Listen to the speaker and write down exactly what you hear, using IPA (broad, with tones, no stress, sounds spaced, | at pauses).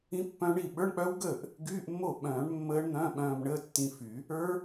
ĩ˦˥ pː œ̃˦˥ ɳ i˥˩ ɓ ə˞˧˥˧ ɳ k͡p œ˦˥ w ɡ əː˥˩ ʔ | ɡ yː˧˥˧ ʔ mː o˥˩ ɓ œ̃ː˨˩˦ ɳ mː əː˦˥ ɳ n̪ œ̃˧˥˧ ɓ œ̃ː˧ m ɳ əː˧˥˧ tː ĩ˧ f y˨˩˦ | ə˞˦˥